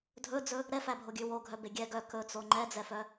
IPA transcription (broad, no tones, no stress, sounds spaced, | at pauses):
dʱ ɵ d͡z ɵ | ɾ ɛ f æ bʱ o ɡʲ ʉ w o ɡʱ œ b e ɡʲ ɛ ɡ œ k ɵ t͡s o ŋ͡ǃ ɛ d͡z ɛ f œ